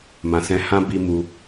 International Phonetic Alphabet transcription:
m ã˨ s ɛ̃˧ h ã˦ b i˧ m u˧

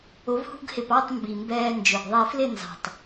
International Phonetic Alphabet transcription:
ʊ˩˥ v h ṳ˧ ɡ h ɪ˨˩ p ɑ˥˨ tˤ m b i˨˩ m b ɛː˧ n d͡ʒ ʊ˨˩ ɡ ðˤ ɛ˧ f l ɪ˥˨ n z ɑ̤˨˩ tˤ

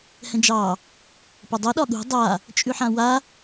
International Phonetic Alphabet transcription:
h ɛ̃ d͡ʒ ɑ | p ə dˤ ʌ ɗ ɒ ɠ ṳ dˤ a | t͡ʃʼ ʉ ħ ã w a

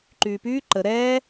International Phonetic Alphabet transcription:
ǃ yː p yː ǃ ə ɾ ɛː

